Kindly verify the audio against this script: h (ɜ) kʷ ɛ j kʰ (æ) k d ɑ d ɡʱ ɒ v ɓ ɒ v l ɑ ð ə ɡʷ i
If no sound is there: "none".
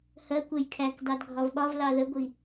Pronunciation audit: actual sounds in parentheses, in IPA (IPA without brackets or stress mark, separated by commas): ɜ, æ